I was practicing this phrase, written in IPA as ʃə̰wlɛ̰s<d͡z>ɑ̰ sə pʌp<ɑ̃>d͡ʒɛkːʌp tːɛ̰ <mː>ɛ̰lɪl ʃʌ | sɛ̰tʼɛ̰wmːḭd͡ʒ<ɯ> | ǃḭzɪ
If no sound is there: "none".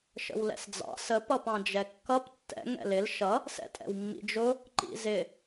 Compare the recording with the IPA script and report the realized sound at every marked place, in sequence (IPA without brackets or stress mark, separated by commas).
d͡z, ɑ̃, ŋ, ʊ